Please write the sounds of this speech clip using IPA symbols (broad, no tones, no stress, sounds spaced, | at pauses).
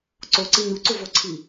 ǀ o ǀ i ɲ u ǀ u v o ǀʰ i